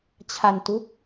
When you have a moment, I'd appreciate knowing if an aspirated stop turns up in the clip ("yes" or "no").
yes